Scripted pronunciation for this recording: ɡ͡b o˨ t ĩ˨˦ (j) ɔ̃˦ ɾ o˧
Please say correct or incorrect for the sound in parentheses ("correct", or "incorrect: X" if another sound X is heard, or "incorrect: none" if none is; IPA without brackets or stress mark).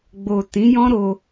correct